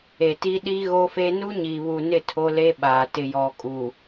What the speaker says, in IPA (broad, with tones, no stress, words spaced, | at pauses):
e˨ti˦ ɗi˦ ɣo˦fe˦ nu˦ɲi˨βu˨nɪ˦˨ tʰo˦le˦ɓaː˨ tɪ˨ jɔ˨kʼu˨